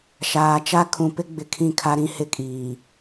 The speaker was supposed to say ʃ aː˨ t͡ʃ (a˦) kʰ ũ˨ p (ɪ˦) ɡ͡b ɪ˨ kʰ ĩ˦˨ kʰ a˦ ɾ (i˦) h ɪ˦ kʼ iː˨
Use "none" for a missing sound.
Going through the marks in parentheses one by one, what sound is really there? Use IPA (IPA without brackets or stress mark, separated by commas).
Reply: a˦, ɪ˦, ĩ˦